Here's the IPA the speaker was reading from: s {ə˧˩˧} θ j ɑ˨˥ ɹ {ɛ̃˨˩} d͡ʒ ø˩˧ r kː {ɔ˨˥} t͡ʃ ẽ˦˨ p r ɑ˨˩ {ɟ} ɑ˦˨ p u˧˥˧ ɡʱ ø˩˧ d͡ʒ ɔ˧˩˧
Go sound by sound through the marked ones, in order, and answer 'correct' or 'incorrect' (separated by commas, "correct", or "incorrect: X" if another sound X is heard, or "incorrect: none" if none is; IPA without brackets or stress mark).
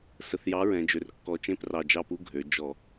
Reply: incorrect: ə˨˩, incorrect: ɛ̃˩˧, incorrect: ɔ˨˩, incorrect: d͡ʒ